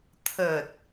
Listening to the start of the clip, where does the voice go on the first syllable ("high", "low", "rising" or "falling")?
low